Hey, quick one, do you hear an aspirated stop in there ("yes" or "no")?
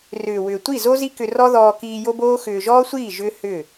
no